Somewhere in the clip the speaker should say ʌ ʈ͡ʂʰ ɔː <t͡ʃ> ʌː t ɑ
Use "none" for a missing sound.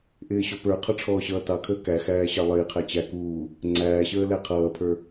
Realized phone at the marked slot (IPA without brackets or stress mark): ɕ